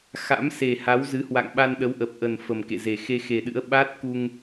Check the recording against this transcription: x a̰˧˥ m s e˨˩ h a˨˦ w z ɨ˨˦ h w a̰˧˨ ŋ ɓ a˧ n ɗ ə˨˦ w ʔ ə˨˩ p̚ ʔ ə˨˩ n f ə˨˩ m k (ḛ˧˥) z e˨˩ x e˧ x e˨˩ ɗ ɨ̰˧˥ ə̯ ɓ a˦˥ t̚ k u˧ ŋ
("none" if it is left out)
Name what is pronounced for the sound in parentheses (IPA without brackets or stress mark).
ḛ˧˨